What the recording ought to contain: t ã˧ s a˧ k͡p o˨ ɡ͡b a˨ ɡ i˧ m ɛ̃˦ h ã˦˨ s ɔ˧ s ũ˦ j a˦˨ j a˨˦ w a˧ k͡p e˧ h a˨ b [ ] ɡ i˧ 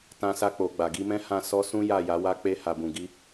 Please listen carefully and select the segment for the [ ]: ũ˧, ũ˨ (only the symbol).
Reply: ũ˨